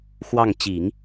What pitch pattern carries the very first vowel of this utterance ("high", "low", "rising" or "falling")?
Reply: falling